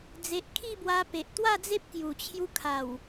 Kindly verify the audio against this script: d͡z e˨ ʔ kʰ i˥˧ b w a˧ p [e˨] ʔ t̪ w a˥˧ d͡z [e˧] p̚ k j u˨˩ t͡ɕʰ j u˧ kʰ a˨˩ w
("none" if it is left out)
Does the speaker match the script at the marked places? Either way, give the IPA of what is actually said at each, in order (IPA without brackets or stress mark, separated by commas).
e˨, e˦